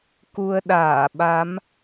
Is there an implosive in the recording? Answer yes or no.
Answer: yes